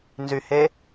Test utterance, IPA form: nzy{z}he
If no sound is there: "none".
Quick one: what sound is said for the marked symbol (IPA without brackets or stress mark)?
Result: none